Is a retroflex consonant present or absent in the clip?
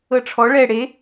present